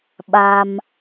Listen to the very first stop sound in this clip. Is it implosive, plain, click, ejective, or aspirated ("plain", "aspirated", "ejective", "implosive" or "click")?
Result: implosive